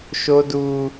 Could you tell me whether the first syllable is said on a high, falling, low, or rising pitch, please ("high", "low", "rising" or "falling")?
high